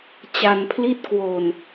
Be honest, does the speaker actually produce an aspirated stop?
yes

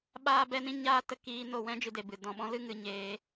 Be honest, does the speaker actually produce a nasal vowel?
yes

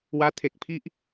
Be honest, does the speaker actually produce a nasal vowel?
no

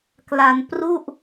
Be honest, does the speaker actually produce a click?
no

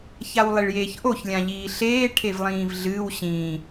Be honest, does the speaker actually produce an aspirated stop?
yes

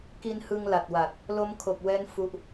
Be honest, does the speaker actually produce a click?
no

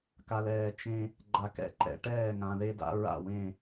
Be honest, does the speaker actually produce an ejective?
no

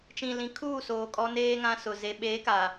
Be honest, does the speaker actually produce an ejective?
yes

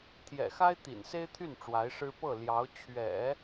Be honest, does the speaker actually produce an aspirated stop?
yes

